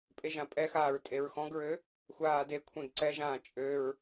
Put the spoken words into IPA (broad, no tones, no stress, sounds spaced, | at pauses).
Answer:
pʼ e ʒ ã pʼ ɛ x aː ɹ tʼ e ɹ x ɔ̃ ɡ ɹ ø | xʷ aː d e kʷʰ ẽ ɡ ǀ ɛ ʒ ãː t͡ʃʼ ø ɹ